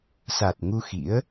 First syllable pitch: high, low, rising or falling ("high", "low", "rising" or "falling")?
low